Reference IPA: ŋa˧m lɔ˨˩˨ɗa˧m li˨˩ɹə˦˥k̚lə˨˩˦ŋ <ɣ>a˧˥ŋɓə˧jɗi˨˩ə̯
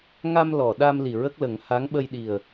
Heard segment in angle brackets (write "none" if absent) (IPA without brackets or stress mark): h